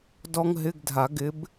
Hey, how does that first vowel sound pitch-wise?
high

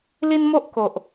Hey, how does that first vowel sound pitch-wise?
high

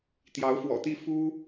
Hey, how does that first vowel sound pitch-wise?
rising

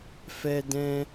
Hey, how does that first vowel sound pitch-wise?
high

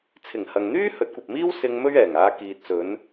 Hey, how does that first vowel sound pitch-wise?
low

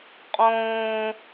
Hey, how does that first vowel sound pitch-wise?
high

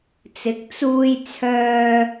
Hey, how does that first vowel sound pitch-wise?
rising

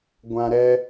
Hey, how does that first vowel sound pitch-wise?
high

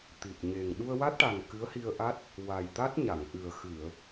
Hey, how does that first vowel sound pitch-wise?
low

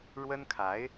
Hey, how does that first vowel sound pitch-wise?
high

